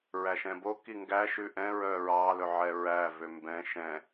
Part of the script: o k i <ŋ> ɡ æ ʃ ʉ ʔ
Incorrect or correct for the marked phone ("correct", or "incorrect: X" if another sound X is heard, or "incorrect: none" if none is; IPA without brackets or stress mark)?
correct